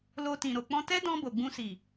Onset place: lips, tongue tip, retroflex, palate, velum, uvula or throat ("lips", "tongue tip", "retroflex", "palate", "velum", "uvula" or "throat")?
tongue tip